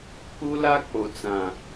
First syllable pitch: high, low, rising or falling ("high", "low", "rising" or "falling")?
high